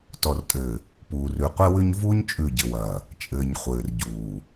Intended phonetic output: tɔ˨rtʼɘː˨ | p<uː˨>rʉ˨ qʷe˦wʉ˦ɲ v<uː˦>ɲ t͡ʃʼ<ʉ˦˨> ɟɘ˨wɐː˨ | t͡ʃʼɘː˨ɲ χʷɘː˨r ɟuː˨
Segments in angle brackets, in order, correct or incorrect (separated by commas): correct, correct, correct